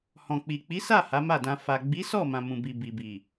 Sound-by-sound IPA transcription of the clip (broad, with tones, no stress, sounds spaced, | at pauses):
h ɔ̃˨ k͡p i˨ k͡p i˨˦ s a˦˨ h a˨˦ m a˦˨ d ã˧ f a˨ ɡ͡b i˨˦ s ɔ˦˨ m ã˧ m ũ˨ b i˨ b i˨ b i˨